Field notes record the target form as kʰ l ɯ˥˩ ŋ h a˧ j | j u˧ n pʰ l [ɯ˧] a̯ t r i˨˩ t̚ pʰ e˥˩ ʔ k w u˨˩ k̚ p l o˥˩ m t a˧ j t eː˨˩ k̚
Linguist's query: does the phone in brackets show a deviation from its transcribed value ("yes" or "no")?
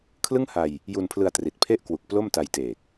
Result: no